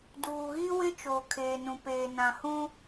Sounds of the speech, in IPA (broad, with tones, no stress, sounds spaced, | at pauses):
d uː˨ ɣ i˦ w ɪ˦ t͡ʃ oː˨ kʰ eː˨ n ũ˨ p eː˨ n ã˨ h ũ˦